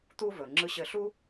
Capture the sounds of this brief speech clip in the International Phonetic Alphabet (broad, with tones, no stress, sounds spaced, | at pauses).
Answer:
t̪ uː˥ v ɵː˩ ŋ͡ǁ ɯ˧ ɕ ɘ˧ ɬ u˥